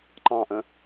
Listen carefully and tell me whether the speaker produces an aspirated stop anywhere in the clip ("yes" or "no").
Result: no